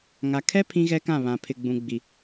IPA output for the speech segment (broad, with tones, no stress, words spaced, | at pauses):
ŋa˨kʰɛ˦ pʰĩ˦ɣɛ˦kã˦˨βã˨ pʰɪ˨ ɡ͡bũ˨ɡ͡bi˨